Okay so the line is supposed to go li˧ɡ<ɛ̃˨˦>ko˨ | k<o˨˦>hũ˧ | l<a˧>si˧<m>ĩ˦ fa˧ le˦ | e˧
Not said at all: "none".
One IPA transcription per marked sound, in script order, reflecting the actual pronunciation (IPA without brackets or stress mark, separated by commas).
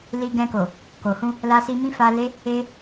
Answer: ɛ̃˧, o˨, a˧, m